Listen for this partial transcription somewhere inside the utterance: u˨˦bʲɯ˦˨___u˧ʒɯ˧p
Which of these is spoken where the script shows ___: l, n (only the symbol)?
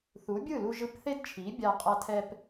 l